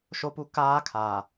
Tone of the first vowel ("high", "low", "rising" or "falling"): high